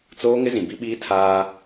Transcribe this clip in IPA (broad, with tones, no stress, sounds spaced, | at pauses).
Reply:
t͡s oː˦ ŋ ɪ˦ z ĩ˨ b i˦ ɓ iː˦ tʰ aː˦